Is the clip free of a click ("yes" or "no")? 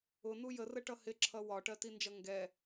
no